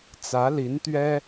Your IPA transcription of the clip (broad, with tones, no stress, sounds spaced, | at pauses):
t͡s ä˧˥ l i˧˥ n t̪ ɥ ɛ˥